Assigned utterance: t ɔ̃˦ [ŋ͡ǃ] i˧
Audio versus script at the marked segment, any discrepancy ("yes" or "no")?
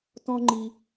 no